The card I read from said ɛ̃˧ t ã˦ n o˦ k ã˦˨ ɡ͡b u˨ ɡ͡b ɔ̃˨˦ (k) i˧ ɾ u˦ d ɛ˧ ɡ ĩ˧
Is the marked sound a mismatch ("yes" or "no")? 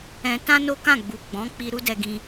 yes